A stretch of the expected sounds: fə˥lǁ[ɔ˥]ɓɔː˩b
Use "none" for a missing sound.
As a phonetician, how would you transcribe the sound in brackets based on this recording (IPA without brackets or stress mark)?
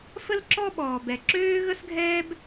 ɔ˥